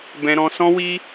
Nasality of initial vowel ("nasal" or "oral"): nasal